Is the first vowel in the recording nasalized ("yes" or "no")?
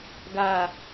no